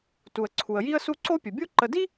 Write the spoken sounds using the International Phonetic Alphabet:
t u˩ ə̯ ǀʰ u˩ ə̯ j i˦ ə̯ s u˦ ǀ o˥ pʲ ɵ˩ bʲ o˦ ǃ ə˨ d i˥

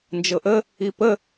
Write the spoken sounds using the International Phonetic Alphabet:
n d͡ʒ ɤ ʔ ə | i p ə

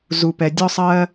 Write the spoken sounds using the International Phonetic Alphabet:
z u˨ p ɛ˨ dʲ ɔ˧ sˤ ɜː˧

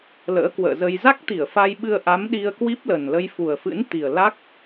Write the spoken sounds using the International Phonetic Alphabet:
l ə̰ː˧˥ k w ə̰ː˧˨ z ə˧ j z a˦˥ k̚ t̪ i˧˩ ə̯ f a˧ j ɓ ɨ˧ ə̯ ʔ a˨˦ m ɗ i˧ ə̯ k w i˦˥ p̚ l ə˨˩ n l ə˧ j f u˨˩ ə̯ f ɨ̰˧˥ n t̪ i˨˩ ə̯ l a˦˥ k̚

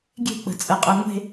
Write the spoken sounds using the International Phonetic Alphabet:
ɡʲ e̤ k͡p ə̤ t͡sʼ ə qʼ ɜ ŋʷ e̤

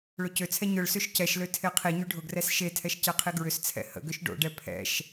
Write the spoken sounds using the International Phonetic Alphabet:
ɭ ʊ c ø t͡sʰ ɛ ɲ ʊ ɭ s ø ʃ c ɛ ʃ l ø tʰ e qʰ i ɲ y ɖʱ ʊ ɡ r ɛ s ʃ e tʰ ɛ ʃ c ɛ qʰ i ɡ ɹ ʏ s t͡sʰ ɛ̰ h ə̰ ɡ ʏ ʃ ɖ o̰ ɖ ɛ pʰ ɛ̰ ʃ

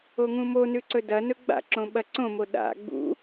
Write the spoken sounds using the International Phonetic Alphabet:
o ŋ ũ m o n ʉ ǀ ɵ d ɐ n ɵ ɡ͡b a̰ ǁ õ ɓ ɐ ǀ õ m o ɗ a̰ ɡ͡b ṵ

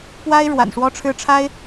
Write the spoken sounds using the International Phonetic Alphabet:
p w a˦ ɪ̯ ɻ w a̰˨˩ n ʂ w ɔ˦ ʈ͡ʂʰ ɻ̩˦ ʈ͡ʂʰ a˦ ɪ̯

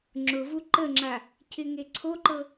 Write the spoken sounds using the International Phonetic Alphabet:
ŋ͡ǁ ʊ v u ǃ ə ŋ͡ǁ a | cʰ ɪ ŋ e ǀʰ o ǃ ɤ

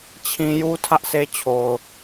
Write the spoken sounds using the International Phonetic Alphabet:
t͡ɕʰ ĩ˦ j u˦ tʰ ä˦ ʔ sʰ e˦ t͡ɕʰ o˨ ʊ̯

